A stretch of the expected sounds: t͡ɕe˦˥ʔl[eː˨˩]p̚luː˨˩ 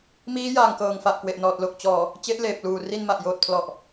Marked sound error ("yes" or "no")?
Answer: no